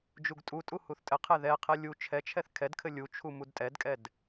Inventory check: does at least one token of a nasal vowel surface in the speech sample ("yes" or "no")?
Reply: no